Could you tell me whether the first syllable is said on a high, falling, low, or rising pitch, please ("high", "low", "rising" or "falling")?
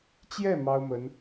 falling